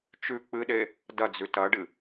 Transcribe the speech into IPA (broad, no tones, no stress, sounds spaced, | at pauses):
t͡ʃ ʉ k͡p ɨ ɗ e | d ɐ d͡z ʉ t ɐ ɖ ɨ